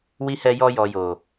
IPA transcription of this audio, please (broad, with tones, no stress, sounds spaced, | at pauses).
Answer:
w i˧ h ɛ˧ j ɔ˧ j ɔ˨ j o˨